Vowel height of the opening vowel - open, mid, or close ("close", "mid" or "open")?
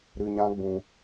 close